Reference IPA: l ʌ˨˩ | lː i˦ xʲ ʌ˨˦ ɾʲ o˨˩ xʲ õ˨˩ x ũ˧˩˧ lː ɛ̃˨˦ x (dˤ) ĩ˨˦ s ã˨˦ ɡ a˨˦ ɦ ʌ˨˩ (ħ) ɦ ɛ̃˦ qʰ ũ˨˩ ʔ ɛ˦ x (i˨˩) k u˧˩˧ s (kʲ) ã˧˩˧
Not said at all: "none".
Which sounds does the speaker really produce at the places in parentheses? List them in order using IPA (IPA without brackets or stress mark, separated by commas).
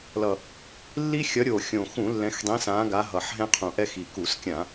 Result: dˤ, ħ, i˨˩, kʲ